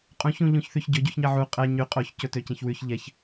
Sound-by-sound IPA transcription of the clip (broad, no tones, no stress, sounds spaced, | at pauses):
qʼ ũ ç ũ ʎ ũ ç θ y ç ɟ ɵ ɟ u ç ɲ ɛ ʕ u qʼ ɛ ɲ y qʼ o ç c ɵ t ø c ẽ ç w ʉ ç ʎ ɛ ç